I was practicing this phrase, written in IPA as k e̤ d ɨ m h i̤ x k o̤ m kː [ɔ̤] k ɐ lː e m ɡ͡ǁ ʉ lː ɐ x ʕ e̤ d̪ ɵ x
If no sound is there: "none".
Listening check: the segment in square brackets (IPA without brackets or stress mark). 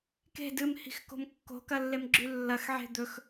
o̤